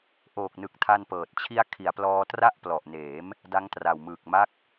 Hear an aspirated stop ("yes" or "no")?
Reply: yes